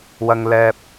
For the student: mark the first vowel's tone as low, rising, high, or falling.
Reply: high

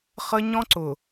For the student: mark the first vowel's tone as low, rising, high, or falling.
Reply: high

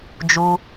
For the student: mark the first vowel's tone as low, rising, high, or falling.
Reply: high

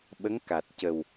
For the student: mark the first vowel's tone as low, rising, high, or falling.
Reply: rising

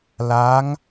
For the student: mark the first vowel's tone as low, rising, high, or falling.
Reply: rising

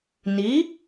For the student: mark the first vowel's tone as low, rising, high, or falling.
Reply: rising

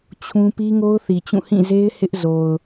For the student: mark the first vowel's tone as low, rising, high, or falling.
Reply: high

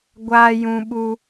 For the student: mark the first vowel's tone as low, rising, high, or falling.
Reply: high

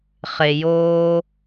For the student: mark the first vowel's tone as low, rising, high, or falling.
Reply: low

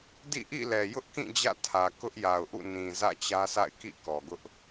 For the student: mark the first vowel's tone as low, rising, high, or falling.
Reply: falling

